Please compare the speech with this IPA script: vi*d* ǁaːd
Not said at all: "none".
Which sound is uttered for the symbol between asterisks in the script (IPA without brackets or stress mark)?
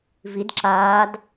d